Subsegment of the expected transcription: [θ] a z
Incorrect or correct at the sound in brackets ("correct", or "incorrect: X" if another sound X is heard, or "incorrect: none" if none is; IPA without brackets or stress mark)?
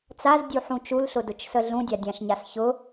incorrect: t͡s